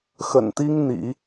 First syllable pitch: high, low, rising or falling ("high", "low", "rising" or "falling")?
low